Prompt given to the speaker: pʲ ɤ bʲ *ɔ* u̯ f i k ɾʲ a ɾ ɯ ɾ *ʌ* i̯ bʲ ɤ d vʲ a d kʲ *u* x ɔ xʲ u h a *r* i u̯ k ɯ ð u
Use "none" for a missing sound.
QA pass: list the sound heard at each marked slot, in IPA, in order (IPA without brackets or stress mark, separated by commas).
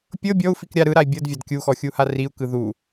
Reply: ɔ, a, u, r